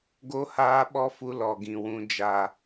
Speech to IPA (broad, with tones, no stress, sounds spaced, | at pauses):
ɡ o˦ h aː˦ ɓ ɔ˦ f u˧ l ɔ˨ ɡ ĩ˨ w ũ˦ d͡ʒ a˧